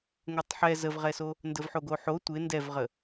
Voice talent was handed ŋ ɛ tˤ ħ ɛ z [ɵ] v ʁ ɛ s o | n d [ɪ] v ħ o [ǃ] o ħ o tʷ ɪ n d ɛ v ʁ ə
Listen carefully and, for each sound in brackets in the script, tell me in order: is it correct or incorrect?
incorrect, incorrect, incorrect

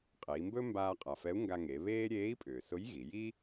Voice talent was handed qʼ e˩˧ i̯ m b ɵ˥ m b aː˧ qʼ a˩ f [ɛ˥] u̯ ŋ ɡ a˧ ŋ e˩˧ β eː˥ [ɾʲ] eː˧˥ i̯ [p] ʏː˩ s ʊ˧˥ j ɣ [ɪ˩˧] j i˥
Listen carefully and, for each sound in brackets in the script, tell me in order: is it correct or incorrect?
incorrect, correct, incorrect, incorrect

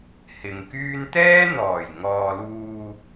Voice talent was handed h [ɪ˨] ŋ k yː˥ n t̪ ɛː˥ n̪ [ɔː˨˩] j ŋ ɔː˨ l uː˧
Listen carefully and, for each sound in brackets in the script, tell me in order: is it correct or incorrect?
correct, correct

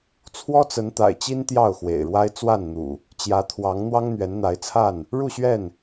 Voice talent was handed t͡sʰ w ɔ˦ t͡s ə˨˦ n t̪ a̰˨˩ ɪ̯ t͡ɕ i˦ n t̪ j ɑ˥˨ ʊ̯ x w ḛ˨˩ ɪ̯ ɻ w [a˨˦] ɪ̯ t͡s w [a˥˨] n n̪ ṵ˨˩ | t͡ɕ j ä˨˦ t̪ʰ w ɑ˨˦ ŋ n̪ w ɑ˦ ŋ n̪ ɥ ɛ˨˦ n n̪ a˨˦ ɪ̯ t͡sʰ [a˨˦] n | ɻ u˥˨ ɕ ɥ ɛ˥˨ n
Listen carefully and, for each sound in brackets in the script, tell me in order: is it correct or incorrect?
incorrect, correct, incorrect

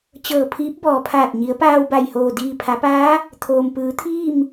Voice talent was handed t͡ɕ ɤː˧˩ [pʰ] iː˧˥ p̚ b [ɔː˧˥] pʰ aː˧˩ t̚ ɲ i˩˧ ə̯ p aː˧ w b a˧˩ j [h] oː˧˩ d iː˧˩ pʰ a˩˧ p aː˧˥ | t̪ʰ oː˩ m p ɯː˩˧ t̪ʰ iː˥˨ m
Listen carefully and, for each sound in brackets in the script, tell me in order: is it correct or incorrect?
correct, incorrect, correct

